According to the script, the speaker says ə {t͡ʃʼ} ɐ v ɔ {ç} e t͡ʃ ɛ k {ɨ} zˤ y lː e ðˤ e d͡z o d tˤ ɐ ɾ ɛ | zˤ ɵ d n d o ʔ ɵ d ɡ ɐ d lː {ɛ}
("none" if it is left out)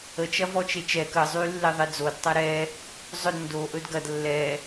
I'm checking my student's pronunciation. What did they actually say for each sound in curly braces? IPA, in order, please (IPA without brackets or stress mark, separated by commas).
t͡ʃ, t͡ʃ, ə, ɛ